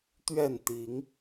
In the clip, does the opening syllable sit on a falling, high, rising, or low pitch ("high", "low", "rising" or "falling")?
falling